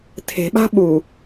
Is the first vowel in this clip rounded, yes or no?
no